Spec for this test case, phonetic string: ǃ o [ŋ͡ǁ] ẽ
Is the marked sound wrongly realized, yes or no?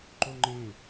yes